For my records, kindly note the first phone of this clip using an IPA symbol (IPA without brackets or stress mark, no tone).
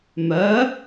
m